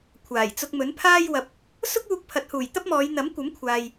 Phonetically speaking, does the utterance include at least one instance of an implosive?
no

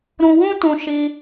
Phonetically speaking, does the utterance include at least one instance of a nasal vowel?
yes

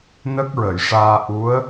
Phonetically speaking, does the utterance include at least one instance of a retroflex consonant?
yes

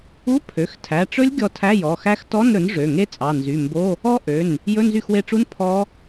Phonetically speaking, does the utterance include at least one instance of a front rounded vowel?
yes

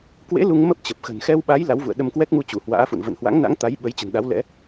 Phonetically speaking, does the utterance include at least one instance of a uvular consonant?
no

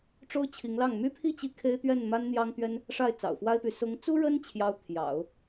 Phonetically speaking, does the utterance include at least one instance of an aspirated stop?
yes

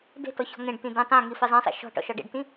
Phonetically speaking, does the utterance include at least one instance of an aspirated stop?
no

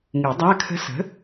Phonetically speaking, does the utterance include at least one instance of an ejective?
no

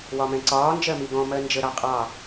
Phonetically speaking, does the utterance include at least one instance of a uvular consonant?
yes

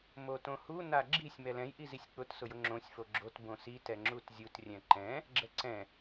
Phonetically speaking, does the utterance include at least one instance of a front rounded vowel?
no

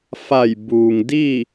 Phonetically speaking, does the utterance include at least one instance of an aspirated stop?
no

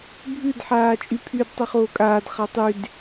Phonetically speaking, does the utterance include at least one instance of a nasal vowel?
no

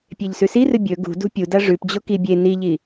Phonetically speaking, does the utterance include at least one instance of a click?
no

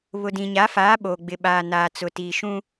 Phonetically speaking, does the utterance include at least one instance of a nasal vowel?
yes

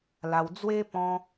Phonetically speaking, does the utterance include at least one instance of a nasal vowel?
yes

